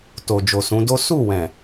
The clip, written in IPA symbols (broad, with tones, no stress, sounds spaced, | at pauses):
t o˨ d͡ʒ o˨ s ũ˨˦ d o˦ s u˦˨ w ɛ̃˨